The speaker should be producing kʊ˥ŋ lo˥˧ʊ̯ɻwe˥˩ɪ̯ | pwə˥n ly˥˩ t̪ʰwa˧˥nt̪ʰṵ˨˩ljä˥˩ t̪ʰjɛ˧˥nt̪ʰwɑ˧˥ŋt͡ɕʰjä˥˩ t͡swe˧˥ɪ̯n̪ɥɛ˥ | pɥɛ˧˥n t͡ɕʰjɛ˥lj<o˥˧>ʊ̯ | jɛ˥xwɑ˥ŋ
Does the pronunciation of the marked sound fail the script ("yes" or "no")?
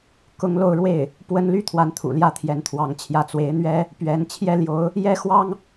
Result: yes